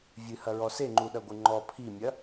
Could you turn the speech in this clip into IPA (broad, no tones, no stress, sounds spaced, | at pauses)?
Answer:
vʲ ɨ h ɐ ɹ ɔ s e ŋ͡ǃ u ɗ ɐ ɡʷ ɨ ŋ͡ǃ ɔ pʰ i mʲ ɐ